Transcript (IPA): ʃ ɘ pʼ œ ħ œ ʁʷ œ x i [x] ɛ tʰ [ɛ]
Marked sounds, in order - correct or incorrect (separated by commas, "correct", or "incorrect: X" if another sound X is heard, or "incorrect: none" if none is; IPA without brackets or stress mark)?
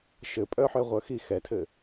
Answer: correct, incorrect: ɘ